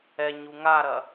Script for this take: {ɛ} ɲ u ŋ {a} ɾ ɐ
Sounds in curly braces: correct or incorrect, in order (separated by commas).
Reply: correct, correct